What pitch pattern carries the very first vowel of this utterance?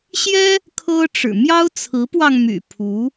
high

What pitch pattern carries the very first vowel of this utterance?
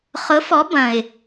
rising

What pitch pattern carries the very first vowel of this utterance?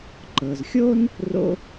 low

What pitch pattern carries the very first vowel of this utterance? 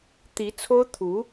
rising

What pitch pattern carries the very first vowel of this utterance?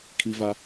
high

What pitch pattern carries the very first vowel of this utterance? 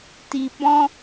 low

